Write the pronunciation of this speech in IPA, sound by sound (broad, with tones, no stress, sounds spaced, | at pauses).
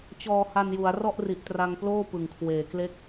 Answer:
t͡ɕ ɔː˧ h a˧ n j u˩˦ a̯ r ɔ˥˩ ʔ r i˨˩ ʔ t r a˧ ŋ p l oː˥˩ p ɯ˨˩ ŋ kʰ w eː˨˩ k l e˥˩ k̚